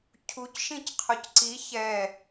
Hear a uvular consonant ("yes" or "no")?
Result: yes